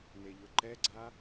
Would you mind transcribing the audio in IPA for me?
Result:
neʎʊǃɛɡ͡ǀa

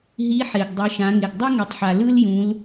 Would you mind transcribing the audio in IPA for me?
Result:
ɦi˧˥ħe˩ɡ dˤɯ˩˧ʃã˩˧ŋe˩ɡ dˤu˥ŋi˩tˤħa˩ lɯ˥ljũ˩˧l

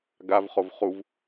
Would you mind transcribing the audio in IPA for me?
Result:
ɡavχov χuv

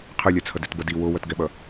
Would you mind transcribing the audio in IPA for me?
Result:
qʰɯlʲat͡sʰʌ detbʌdi wowʌtɡɛɓʌ

